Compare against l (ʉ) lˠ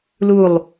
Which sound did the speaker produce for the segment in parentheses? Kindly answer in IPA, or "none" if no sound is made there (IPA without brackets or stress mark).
u